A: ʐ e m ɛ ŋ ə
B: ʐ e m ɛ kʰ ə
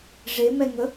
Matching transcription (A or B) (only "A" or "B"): A